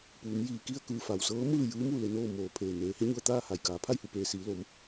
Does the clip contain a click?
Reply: no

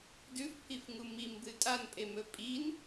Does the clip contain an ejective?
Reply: yes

